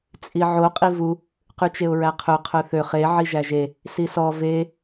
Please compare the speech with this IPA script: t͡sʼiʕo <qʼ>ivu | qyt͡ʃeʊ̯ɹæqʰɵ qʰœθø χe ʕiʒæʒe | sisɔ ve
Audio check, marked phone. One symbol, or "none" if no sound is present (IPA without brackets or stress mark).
qʼ